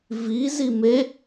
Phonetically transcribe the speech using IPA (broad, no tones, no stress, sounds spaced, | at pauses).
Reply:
v i z i m e